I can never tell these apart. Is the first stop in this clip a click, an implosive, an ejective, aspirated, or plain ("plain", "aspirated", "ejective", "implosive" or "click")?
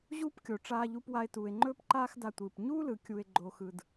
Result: plain